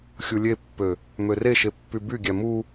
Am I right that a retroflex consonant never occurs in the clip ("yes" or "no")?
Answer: yes